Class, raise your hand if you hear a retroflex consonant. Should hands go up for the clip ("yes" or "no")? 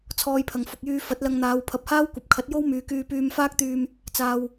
no